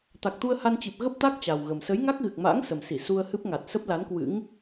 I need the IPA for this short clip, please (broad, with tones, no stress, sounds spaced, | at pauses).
t̪ a˨˩ k̚ t̪ u˧ ə̯ h a˧ n t͡ɕ i˨˩ p̚ ɣ ə˦˥ p̚ t̪ a˦˥ k̚ t͡ɕ a˨˩ w ɣ ə˨˩ m s ə˨˦ j ŋ a˦˥ k̚ ɣ ɨ˨˩ k̚ m a̰ː˧˥ ŋ s ə˨˩ m s i˧˩ s u˧ ə̯ h ɨ˦˥ p̚ ŋ a˨˩ t̚ s ə˦˥ p̚ l a˨˦ n k w ɨ̰˧˥ ŋ